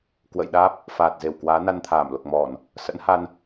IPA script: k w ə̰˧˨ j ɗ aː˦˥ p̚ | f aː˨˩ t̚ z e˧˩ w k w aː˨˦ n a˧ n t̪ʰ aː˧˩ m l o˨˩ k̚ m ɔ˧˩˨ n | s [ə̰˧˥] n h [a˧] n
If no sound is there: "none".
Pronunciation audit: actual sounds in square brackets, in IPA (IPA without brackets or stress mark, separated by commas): ə̰˧˥, a˧